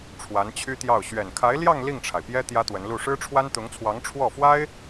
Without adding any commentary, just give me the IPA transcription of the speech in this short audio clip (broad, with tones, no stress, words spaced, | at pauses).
ʈ͡ʂʰwa˧˥nt͡ɕʰy˥t̪jɑ˥˩ʊ̯ ɕɥɛ˨˩nkʰa˧˥ɪ̯ljɑ˥˧ŋ li˥˩ŋʈ͡ʂʰa˩ɪ̯pjɛ˥ t̪jä˥t̪wə˧˥nlu˥˩ ʂɻ̩˥ʈ͡ʂʰwa˥nt̪ʊ˧˥ŋt͡sʰwɑ˧˥ŋ ʈ͡ʂʰwɔ˥˩fwa˥ɪ̯